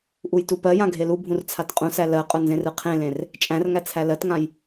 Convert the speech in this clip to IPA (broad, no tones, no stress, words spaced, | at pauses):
ʔujtupɜjã ɡʱelubʱũr t͡sʰatqʼũsæ lɜqʼʊ nzẽrɯqʰẽlẽr | t͡ʃʼæ̃rŋæ t͡sʰælɜtŋãj